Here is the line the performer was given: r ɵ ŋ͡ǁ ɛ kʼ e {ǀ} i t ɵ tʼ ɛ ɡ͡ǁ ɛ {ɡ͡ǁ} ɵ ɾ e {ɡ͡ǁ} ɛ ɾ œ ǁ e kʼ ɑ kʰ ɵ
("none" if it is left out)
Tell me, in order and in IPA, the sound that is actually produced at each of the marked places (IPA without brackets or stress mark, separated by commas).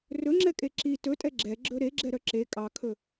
ǁ, ɡ͡ǁ, ɡ͡ǁ